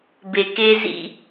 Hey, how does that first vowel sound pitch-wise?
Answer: low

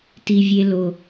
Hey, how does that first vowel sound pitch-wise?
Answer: low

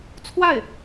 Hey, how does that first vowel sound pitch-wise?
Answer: falling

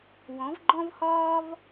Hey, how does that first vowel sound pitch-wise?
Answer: rising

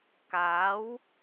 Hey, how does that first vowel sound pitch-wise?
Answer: rising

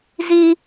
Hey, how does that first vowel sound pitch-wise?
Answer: high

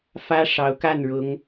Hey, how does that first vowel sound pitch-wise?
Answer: high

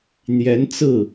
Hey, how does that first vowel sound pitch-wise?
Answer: rising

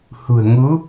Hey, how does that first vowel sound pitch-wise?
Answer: low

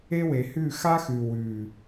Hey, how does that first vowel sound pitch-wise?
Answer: high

